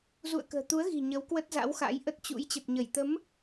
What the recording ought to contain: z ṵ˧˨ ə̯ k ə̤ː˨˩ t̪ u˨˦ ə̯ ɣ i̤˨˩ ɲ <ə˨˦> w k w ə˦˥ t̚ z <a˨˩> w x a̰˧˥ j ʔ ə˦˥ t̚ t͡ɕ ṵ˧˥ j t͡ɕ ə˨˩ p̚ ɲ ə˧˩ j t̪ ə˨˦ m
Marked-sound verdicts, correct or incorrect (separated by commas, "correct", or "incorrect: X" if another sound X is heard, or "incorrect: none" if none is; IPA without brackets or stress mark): correct, incorrect: a̰˧˥